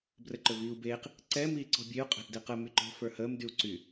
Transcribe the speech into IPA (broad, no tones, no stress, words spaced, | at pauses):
brəǃɵviːu̯beːq | ǀɛ miːǀɔ̤bʲeu̯ qʼɛ̤ʔdeqə myǃɔ̤ fə˞həːm dyu̯ǀy